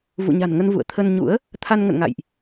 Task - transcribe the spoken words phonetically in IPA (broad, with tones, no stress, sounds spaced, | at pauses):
v ṵ˧˨ ɲ a̤˨˩ n ŋ ə˧ n v ṵ˧˨ ə̯ t̪ʰ ə˧ n ɲ ṵ˧˥ ə̯ | t̪ʰ a˧ n ŋ ə̰˧˨ n ŋ a̰˧˨ j ʔ